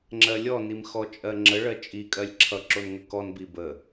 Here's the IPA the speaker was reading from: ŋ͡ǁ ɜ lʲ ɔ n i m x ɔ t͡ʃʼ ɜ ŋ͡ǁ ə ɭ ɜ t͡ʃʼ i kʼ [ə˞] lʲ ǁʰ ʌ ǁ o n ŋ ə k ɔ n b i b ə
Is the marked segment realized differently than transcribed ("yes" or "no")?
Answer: yes